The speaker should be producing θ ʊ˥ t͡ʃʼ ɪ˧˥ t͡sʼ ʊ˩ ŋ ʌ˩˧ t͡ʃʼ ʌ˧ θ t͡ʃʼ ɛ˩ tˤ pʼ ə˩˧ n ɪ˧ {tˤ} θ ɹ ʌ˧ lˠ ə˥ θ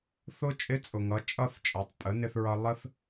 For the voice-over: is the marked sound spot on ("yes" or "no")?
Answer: no